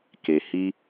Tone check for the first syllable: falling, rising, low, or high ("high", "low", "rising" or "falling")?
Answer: low